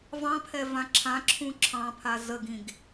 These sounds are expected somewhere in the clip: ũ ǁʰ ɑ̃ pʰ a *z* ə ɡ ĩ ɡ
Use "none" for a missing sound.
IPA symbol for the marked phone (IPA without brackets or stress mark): z